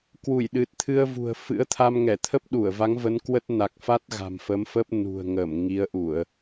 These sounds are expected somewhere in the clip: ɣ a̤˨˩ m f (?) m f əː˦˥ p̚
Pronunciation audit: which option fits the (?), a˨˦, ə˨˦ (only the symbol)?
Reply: ə˨˦